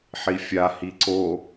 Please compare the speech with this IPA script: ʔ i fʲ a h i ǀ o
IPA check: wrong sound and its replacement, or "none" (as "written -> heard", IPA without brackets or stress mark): ʔ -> ħ